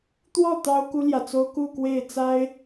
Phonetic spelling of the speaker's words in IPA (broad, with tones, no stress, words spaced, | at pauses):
t̪wɔ˥˩ t̪ɑ˥ʊ̯ku˥ljä˨t͡so˥ʊ̯ ku˥˧kwe˥˩ɪ̯t͡sa˥ɪ̯